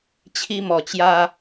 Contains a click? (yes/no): no